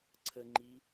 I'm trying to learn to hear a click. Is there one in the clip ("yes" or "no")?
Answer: yes